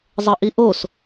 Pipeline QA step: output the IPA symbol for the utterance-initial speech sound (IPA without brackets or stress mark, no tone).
zˤ